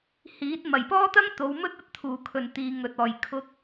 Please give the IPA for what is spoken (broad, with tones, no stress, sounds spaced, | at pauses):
h iː˨˥ t̚ m ɐ˨˩ j p ɔː˥ t̪ ɐ˥ ŋ t̪ o˨˧ w m ɵ˥ t̚ ɐ˥ t̚ t̪ʰ uː˨˩ kʰ ɵ˨˩ n t̪ iː˨ ŋ ɵ˨ t̚ ɔː˨˩ j kʰ ʊ˨˥ k̚